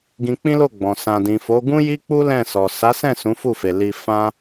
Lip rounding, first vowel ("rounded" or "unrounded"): unrounded